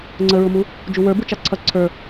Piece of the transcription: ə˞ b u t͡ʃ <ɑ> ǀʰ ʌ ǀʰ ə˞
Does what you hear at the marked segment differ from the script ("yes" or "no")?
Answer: no